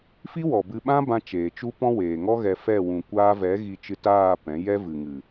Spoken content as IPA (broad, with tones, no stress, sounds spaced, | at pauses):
f i˦ w ɔ˨ b ɨ˧ ɓ ã˦ b ã˧ t͡ʃ eː˨ t͡ʃ u˦ p ɔ̃˦ w eː˨ ŋ ɔ˦ ɣ ɛ˧ f ɛ˦˨ w ũ˨ kʷ aː˧ v ɛ˨˦ ɣ i˧ t͡ʃ ɨ˧ t aː˦˨ p ɛ̃˨˦ j ɛ˦ v ɨ˨ ŋ ɨ˨